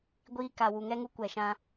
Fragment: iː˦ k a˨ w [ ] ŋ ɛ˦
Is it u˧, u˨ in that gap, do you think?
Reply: u˨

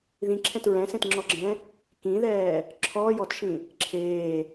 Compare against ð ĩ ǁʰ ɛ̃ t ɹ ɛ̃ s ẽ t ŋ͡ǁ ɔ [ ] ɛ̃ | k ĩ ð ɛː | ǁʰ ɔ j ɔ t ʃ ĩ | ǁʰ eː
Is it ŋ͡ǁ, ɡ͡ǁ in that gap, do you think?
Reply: ɡ͡ǁ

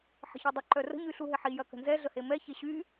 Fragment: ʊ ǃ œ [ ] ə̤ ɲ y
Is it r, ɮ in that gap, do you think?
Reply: r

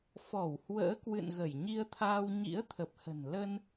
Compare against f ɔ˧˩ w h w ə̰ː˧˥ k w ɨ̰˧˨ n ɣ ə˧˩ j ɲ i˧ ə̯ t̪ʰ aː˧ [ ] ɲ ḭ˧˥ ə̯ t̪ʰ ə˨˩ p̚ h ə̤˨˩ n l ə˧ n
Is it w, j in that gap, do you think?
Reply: w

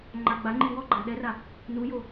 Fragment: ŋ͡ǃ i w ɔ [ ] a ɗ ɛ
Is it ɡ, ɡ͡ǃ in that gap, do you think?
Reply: ɡ͡ǃ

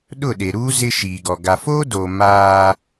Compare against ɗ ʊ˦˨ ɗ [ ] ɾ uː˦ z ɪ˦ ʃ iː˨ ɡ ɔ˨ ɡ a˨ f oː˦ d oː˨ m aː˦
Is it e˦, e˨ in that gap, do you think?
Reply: e˨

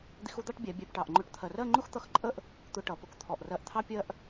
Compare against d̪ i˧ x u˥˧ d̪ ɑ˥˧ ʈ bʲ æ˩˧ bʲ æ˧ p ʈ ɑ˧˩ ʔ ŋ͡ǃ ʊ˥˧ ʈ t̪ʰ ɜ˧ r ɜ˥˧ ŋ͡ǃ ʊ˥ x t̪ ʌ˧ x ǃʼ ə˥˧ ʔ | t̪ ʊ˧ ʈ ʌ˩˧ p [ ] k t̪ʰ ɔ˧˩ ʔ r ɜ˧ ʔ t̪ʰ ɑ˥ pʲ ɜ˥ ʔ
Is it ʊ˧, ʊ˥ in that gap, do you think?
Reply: ʊ˧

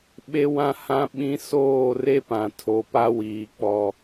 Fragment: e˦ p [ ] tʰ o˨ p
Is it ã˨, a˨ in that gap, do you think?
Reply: ã˨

